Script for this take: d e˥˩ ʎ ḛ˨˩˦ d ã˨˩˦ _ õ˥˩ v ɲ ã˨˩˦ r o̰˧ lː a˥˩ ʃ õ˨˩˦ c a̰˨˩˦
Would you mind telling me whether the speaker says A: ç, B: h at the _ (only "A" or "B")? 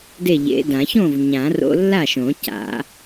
A